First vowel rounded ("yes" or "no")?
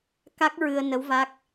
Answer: no